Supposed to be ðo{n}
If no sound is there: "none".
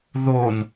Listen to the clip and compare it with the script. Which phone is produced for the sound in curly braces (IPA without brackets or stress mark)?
n